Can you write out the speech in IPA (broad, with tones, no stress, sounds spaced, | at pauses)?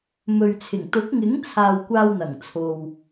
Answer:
m ɵ˨ ɥ t͡sʰ ɪ˨˩ ŋ t̪ ʊ˨˥ k̚ ŋ ɪ˨˥ ŋ t͡sʰ aː˨ w kʷ aː˧ w n̪ ɐ˨˩ ŋ t͡sʰ o˨ w